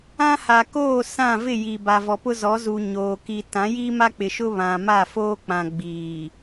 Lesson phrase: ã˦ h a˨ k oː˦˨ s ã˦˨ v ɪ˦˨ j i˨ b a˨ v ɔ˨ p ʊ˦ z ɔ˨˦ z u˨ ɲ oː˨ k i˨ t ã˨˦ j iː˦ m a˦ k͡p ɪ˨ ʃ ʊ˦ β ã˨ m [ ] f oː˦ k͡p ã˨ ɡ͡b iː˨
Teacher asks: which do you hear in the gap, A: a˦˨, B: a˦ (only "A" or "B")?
A